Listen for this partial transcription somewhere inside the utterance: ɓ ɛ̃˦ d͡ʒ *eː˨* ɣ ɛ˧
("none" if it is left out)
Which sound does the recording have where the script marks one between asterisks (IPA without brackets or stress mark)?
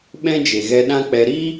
e˨